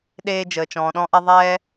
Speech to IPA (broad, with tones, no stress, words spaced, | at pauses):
ɗeː˧ d͡ʒəː˨t͡ʃɔ̃ː˨ɗɔ̃˦ʔɛ˦ ðˤɛː˦